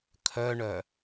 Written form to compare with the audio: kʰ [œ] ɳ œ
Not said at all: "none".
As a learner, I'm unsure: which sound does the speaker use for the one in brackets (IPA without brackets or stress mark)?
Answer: œ